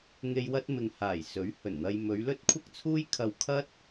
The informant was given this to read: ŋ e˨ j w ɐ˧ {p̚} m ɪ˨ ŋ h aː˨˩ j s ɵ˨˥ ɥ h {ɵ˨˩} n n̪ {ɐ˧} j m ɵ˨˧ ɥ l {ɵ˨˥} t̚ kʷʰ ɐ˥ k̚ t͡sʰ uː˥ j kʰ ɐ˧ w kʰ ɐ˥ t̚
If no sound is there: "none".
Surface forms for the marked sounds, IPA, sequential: t̚, ɵ˨˩, ɐ˧, ɵ˥

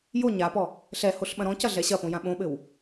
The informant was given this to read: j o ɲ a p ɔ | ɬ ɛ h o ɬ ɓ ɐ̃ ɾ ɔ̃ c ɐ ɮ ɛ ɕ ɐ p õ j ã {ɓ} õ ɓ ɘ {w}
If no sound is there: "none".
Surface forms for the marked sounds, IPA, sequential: ɓ, w

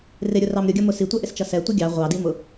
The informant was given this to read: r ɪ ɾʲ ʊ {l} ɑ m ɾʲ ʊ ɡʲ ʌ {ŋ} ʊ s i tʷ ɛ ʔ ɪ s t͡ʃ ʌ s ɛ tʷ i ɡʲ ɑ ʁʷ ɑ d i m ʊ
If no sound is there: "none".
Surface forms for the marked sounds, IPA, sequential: r, m

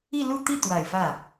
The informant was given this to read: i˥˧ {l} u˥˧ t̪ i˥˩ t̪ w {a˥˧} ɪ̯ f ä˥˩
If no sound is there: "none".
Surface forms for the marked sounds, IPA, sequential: l, a˨˩

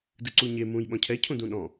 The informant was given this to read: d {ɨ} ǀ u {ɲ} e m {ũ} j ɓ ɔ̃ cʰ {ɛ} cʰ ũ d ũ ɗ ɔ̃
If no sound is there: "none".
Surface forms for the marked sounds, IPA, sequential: ɨ, ɲ, ũ, ɛ

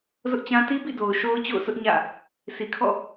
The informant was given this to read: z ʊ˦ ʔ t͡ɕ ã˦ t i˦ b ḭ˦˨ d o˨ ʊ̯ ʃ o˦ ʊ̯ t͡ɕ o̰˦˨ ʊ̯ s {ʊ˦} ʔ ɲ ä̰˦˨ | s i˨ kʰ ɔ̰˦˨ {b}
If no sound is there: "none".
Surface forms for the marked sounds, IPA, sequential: ʊ˦, none

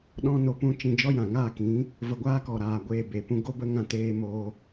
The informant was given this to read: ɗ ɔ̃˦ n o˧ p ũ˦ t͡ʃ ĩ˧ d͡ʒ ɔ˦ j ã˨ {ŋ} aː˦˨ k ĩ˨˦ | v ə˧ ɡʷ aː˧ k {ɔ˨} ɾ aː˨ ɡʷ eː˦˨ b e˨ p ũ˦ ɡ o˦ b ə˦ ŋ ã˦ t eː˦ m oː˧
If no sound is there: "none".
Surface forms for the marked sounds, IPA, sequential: ŋ, ɔ˨

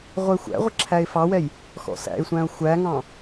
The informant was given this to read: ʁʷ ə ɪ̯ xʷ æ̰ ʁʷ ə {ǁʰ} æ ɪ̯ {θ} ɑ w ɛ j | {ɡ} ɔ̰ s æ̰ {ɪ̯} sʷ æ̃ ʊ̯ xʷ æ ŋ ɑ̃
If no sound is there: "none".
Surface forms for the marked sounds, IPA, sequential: ǁʰ, f, x, ɪ̯

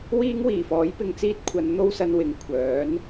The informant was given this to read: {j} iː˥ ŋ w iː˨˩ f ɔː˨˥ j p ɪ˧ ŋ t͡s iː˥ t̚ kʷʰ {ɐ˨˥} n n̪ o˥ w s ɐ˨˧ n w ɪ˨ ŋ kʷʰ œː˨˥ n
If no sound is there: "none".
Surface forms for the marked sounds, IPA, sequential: w, ɐ˨˧

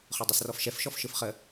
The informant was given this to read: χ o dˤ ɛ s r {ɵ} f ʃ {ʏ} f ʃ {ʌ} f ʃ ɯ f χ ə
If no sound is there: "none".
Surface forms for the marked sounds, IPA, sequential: ɔ, ɛ, ɔ

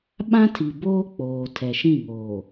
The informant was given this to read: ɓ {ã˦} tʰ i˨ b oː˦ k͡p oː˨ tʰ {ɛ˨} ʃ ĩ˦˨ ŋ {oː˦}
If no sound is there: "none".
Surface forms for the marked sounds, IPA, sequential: ã˦, ɛ˨, oː˨

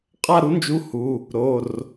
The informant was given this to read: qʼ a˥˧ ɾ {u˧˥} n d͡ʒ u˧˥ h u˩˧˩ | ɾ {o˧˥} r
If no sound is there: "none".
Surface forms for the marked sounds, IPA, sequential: u˧˥, o˩˧˩

